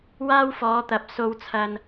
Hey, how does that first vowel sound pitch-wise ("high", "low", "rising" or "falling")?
high